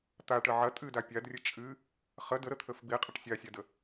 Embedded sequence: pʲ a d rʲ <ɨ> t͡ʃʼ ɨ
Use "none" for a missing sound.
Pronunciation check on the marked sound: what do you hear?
ə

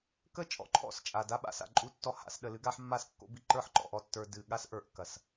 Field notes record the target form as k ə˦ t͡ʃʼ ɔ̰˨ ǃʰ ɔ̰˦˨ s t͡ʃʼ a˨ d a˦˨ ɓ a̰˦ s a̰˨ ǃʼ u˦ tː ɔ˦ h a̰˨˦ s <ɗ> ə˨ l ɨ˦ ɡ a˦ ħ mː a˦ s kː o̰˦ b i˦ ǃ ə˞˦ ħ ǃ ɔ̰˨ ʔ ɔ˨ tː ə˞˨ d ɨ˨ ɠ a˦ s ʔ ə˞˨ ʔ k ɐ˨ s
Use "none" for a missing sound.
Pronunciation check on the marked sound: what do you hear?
ɗ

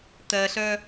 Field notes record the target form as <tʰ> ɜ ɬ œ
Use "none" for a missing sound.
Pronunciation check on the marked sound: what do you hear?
t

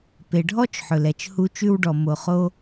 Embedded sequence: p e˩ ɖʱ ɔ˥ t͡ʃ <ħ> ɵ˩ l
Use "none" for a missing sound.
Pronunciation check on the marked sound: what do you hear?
ħ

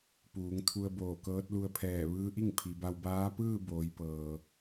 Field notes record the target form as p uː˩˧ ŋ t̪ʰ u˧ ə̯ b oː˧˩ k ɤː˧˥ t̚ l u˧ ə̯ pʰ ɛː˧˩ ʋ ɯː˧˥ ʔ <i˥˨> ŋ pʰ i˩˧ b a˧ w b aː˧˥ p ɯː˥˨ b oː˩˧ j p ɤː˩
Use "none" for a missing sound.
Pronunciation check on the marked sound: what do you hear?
i˥˨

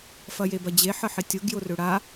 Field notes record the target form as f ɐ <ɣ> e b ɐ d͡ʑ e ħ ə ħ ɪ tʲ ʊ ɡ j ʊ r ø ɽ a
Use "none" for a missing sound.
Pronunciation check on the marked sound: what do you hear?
j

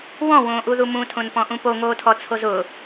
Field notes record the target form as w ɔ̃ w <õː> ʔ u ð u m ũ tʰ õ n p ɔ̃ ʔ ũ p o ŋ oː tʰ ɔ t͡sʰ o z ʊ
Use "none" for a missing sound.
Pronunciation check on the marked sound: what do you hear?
õː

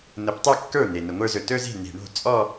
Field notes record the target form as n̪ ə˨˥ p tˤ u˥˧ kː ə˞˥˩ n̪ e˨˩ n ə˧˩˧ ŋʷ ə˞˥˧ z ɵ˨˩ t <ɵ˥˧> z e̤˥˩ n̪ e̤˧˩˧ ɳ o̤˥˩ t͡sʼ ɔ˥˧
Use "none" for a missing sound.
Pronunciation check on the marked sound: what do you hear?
ɵ˥˧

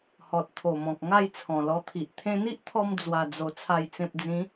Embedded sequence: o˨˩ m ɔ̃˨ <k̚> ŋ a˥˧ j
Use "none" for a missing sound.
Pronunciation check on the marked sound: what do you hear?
k̚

